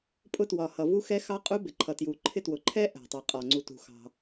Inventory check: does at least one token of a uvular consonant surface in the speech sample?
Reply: yes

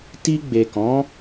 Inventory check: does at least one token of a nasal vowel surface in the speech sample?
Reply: yes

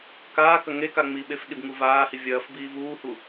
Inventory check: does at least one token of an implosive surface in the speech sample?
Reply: yes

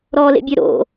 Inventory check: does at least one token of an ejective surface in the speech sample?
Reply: no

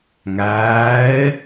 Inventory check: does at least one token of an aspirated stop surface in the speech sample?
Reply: no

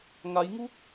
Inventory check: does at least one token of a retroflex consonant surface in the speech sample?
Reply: no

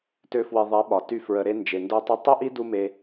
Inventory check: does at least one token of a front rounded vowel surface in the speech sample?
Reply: yes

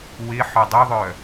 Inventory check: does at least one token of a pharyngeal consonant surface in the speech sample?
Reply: yes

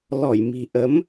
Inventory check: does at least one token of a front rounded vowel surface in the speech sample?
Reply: no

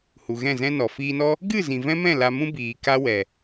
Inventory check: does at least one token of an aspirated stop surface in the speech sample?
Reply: no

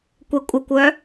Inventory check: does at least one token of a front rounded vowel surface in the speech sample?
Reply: yes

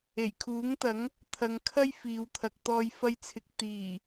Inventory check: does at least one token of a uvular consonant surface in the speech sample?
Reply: no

